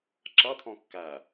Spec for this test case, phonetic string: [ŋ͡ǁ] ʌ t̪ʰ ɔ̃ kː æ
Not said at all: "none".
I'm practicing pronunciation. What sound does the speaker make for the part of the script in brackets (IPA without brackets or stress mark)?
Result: ǁ